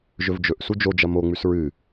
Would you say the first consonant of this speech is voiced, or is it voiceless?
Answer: voiced